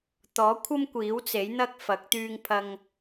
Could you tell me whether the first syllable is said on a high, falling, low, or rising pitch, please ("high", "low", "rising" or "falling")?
rising